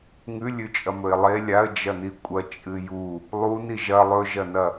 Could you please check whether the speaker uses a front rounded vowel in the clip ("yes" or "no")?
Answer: no